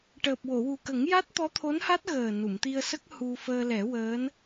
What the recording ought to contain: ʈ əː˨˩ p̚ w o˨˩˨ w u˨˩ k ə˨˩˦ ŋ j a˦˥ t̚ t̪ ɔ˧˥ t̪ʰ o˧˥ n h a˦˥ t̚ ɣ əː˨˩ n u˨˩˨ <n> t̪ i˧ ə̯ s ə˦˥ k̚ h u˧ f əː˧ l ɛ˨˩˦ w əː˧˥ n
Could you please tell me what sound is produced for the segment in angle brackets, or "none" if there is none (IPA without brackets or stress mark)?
m